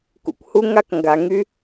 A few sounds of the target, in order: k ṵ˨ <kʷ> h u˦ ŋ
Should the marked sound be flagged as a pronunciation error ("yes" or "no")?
no